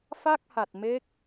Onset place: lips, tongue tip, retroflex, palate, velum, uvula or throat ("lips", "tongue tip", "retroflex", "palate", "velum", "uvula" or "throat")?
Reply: lips